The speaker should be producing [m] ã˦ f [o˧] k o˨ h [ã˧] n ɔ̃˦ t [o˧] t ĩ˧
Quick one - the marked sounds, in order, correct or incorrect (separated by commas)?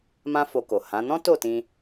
correct, correct, incorrect, incorrect